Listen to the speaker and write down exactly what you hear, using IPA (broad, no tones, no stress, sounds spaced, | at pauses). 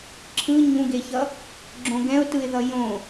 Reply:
ǁʰ ɯ ɲ ũ ɡ e ç ʌ | ɡ͡ǁ õ ɡ ɛ̃ ʊ̯ t ɯ ɪ̯ ð ʌ j õ